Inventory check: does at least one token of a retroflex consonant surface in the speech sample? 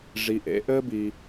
yes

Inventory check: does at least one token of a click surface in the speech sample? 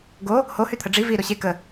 no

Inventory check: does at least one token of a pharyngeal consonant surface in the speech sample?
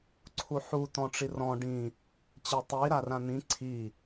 yes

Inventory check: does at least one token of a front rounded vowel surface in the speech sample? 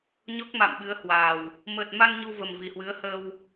no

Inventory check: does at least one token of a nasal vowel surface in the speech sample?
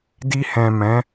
yes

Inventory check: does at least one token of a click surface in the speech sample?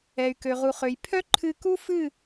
yes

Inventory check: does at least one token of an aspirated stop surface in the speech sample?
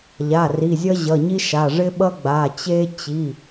no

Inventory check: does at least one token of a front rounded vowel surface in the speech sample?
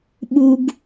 no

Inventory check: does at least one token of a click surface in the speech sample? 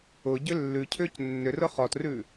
no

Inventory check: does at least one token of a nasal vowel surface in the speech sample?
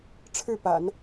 no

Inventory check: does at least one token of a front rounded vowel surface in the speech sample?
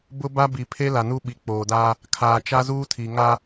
no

